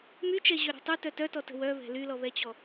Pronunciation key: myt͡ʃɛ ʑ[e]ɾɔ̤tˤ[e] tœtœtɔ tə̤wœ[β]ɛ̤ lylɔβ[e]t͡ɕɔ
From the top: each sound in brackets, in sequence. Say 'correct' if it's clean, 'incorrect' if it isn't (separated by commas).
incorrect, incorrect, correct, incorrect